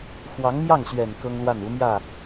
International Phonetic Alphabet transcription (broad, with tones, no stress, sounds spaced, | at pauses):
x w ɑ˧˥ ŋ m j ɑ˥˩ ŋ ɕ ɥ ɛ˨˩ n k ɤ˥ ŋ l w a˥˩ n u˧˥ m j ä˥˩